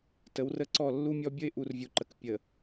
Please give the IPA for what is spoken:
tə˨˦wrə˦ǀɔ˦˨ lːu˦mʲɔ˦ bʲə˦ɪ̯ʔu˨r vʲu˨ǃə˨k pʲə˨

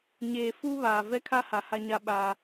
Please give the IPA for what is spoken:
ɲeː˨ fu˦βaː˨ vɛ˦kʰa˦ha˨ ha˦ɲa˦ɓaː˦

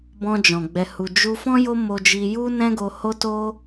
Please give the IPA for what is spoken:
bɔ̃˧d͡ʒɔ̃˨ ɡ͡bɛ˨hu˨ d͡ʒu˧fɔ̃˦ jo˦ mo˦d͡ʒi˦ ju˦nɛ̃˦ɡo˧ ho˦to˦

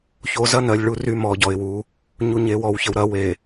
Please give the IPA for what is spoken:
ço˨zɐ˦ nɜ˨lʲɭu˦ ry˦ mɔ˨ɟɔ˨ɪ̯wu˨˦ | ɲu˨ɲe˨wɔ˨w çə˨wɾɐ˨˦we˨

